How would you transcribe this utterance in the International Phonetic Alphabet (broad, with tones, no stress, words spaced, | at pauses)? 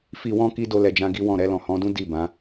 fi˨wɔ̃˧ ki˦do˧lɛ˨d͡ʒã˧ ɡi˦wɔ̃˦˨ ɾɛ˧lɔ̃˨hɔ̃˨˦dũ˦ di˦˨bã˨˦